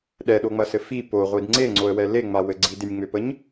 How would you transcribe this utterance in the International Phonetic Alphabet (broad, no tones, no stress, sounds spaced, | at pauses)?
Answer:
ɗ ɛ ɗ o ŋ͡m ɐ s ɘ f i p o ʁʷ i d ŋ͡ǀ e ŋ͡ǀ o ə̯ w ɛ l e ŋ͡m a w ɘ ɡ͡ǀ i d e nʲ ŋ͡m ø p ə ɲ